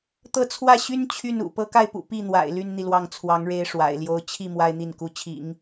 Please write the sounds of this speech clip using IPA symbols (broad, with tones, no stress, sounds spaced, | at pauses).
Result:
t̪ ɤ˥˧ t͡sʰ w ä˥˩ ɕ y˥ n t͡ɕʰ y˥˩ n ṵ˨˩ p ɤ˧˥ k a˥˩ ɪ̯ p ṵ˨˩ p i˥˩ n̪ w a̰˨˩ ɪ̯ l y˥ n n̪ i˨ l w ɑ˥˩ ŋ t͡sʰ w ɑ˧˥ ŋ ɻ e˥ ɪ̯ ʂ w a̰˨˩ ɪ̯ l j o˥ ʊ̯ t͡ɕʰ i˥˩ m w a˥ ɪ̯ n̪ i˥˩ n k u˧˥ t͡ɕʰ ḭ˨˩˦ ŋ